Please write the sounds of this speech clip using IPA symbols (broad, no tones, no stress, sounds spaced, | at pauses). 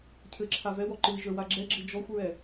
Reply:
cʰ ɘ ǁʰ a v ɛ w ɔ ǃ ɨ i̯ ʒ ə˞ w a ɡ͡ǁ ɛ ɡ͡ǁ ɨ d͡ʒ ɔ xʷ ɹ ɛ